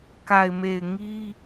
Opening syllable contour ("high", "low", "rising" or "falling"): low